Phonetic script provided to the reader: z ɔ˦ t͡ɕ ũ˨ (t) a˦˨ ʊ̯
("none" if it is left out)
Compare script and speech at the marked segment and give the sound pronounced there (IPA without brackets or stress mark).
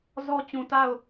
t